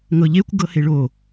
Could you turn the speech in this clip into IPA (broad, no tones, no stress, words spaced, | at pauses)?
ŋɤʎekʷ ɡɤheɭo